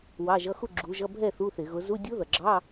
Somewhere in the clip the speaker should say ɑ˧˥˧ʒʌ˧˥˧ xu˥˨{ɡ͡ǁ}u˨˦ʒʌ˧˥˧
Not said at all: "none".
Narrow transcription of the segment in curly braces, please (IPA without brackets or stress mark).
ɡ͡ǁ